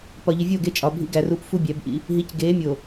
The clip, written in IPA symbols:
pɒ˨ʎi˨vʲoː˦˨ɡe˦˨ t͡ʃʼɒ˨bʱḭ˦ɡæ˨ru˦p fu˦bʲæ˨˦bʔḭ˦ | ɦi˨˦cɡeː˨˦mʲo˨

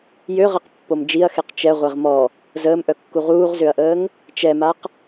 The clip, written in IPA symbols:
jøʁɛqpːom d͡ʒiɐ̯xeq t͡ʃɛʁʷeʁ mɔ | zəːmʔœkːu ʁuːʁzøɐ̯ʔəːŋ | t͡ʃɛmaq

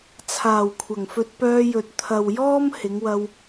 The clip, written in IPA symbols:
t͡sʰaː˨˩wkʷʰɐ˨˩ŋfɵ˧t̚ pœː˧jɵ˨t̚ t̪ʰɐ˨wjɔː˥m hɪ˨˧ŋwɐ˧w

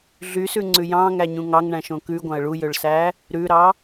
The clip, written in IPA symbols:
ɮysʉŋ͡ǀʉ jɑ̃ŋæɲũ ŋɑŋɳæ̃ʃõ kʉɡʷɑ̃ə̯ ɭujøɭsæ | ɾʉɾɑ

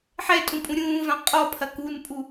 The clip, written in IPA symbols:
ħɛtʼũ pʼũɾʲũːvã qʼɔpʰɐ kunpʼu

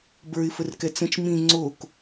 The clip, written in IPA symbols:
bə˞ɪ̯fərkɛ t͡sə̃t͡ʃ mĩ ŋ͡ǀok

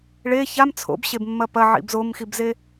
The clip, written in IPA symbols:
ɭe çam t͡sʰo̰bɕebmːɐ pɐʕḭb zomxibze

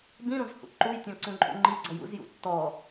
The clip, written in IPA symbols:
bĩɾũz hṵǃujtʲɔ̃ ǀũǃʼṵŋ͡ǃiɡ͡ǀɔj ṵzjṵ tːɔ

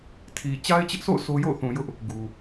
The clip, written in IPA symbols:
tʰi˨ t͡ɕa˦ɪ̯t͡ɕɪ˦ʔso̰˦˨ʊ̯ sʰo˦jo̰˦˨ʊ̯θũ˨jʊ˦ʔ | ɡu˨

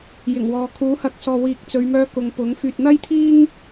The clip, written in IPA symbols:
jɪ˨˩ŋwɔː˨ kʰuː˨˥hɐ˨˥k̚sɔː˨ wiː˨k̚t͡sɵ˨˧ɥ mœː˥kʊ˨ŋpʊ˨˥ŋ fyː˨t̚n̪ɐ˥jt̪ʰiː˥ŋ

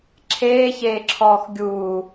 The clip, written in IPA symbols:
ǁʰeːçeːǁʰɔːx ɡʲuː

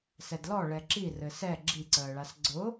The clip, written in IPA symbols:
sɛdlɔ ɭɛǁi rɘsɛ ɡ͡ǁiǀəːɭas ɡ͡ǀʊ

